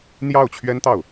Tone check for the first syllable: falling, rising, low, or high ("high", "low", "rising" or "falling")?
falling